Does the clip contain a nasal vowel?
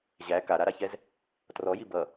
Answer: no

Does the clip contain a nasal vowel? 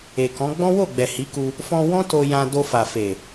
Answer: yes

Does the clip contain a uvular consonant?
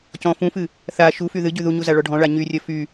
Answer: no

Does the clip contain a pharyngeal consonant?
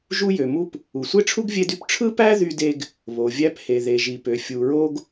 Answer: no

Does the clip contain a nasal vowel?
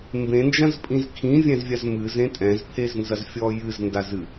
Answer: yes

